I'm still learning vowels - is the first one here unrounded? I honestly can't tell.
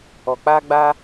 no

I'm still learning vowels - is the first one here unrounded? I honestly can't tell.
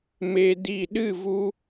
yes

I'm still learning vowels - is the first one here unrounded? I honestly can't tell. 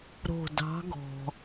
no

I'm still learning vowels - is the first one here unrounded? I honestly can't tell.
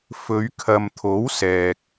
no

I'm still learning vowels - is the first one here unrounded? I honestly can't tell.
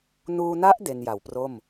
no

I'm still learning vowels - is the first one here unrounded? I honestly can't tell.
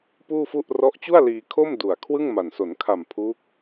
no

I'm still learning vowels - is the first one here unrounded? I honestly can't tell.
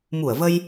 no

